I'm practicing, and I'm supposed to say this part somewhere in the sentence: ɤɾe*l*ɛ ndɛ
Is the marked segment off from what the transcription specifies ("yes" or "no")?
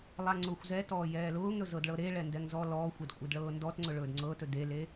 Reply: yes